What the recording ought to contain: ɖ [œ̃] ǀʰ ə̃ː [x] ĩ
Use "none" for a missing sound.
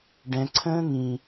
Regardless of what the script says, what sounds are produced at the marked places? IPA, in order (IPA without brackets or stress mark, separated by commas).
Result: ɛ̃, ŋ